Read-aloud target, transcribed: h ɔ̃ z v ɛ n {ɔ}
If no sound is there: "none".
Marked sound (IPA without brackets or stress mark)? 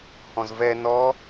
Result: ɔ